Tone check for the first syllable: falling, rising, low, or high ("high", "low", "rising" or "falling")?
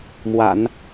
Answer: low